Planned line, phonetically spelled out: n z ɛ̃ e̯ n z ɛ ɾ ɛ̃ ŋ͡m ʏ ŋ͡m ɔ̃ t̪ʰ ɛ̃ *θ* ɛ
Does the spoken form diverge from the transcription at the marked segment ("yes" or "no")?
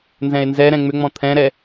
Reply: yes